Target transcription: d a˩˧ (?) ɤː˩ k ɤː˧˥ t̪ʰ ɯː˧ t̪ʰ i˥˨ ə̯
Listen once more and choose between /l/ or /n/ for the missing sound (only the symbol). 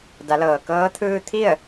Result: l